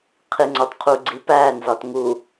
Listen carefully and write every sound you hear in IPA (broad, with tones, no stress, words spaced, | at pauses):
qʰi˨ŋ͡ǀɒ˨tqʰu˨ ɡ͡ǀi˨pæː˦˨nzɒ˨t ŋu˨